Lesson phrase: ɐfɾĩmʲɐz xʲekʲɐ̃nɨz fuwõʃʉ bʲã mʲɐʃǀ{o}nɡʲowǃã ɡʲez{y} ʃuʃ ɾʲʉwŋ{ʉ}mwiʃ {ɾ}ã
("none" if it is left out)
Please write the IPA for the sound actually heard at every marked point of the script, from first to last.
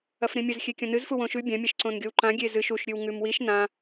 õ, ɨ, ʉ, n

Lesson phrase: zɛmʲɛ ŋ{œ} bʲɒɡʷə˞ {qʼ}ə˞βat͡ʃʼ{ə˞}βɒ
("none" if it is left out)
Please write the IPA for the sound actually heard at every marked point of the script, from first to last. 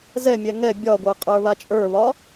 ɛ, qʼ, ə˞

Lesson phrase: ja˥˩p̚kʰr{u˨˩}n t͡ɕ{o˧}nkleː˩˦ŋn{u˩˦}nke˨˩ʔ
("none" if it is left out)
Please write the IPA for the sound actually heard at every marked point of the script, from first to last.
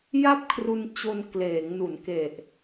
u˧, o˧, u˩˦

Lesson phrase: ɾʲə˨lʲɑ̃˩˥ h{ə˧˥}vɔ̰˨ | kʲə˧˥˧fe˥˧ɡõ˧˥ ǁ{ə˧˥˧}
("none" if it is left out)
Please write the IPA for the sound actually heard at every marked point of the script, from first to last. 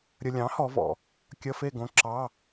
ɔ˧˥, ɑ˧˥˧

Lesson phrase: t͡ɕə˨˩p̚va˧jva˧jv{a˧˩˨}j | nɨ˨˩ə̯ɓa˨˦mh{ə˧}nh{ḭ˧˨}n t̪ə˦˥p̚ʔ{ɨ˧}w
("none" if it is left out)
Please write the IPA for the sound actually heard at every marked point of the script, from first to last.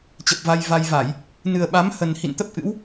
a˧˩˨, ə˨˩, ḭ˧˨, ɨ̰˧˥

